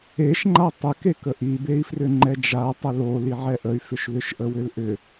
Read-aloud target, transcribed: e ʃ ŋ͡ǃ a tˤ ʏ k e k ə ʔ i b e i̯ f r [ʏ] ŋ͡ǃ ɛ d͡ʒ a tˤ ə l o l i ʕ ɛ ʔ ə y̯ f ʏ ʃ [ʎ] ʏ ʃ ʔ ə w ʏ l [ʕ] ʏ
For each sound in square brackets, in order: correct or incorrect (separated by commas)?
correct, incorrect, incorrect